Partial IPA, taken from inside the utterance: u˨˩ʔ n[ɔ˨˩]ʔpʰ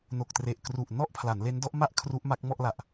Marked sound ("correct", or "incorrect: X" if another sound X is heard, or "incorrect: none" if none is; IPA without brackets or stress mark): incorrect: ɔ˥˩